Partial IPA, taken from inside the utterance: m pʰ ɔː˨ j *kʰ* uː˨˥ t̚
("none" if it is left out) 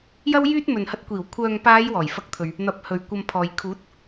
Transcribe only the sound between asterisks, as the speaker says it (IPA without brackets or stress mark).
kʰ